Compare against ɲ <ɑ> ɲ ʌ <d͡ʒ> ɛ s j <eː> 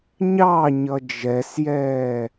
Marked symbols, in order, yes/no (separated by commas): yes, yes, no